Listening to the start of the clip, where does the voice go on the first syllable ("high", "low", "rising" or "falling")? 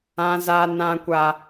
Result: high